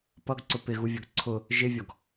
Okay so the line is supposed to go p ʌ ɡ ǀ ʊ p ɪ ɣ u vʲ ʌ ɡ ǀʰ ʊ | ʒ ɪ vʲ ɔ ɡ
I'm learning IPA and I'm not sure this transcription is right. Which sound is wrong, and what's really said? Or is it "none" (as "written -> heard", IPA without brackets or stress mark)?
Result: none